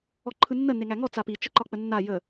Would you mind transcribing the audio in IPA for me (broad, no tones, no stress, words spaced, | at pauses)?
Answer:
ɔǃʰɯnːə neŋæŋɔ t͡sapi t͡ʃəǃɒk͡pənːa jə